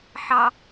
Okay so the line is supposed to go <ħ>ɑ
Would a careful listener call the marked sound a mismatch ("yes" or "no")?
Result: no